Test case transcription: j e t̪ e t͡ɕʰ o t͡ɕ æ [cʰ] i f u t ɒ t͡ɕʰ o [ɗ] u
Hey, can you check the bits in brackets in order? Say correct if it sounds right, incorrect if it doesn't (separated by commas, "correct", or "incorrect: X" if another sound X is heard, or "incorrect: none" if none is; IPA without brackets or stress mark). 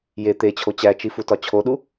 incorrect: t͡ʃ, correct